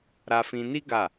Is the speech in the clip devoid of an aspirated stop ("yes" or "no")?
yes